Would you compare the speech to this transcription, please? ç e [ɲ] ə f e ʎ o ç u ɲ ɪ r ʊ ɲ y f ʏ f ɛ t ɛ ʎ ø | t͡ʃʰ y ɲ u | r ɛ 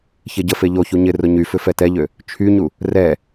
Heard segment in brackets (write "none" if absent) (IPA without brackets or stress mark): ɟ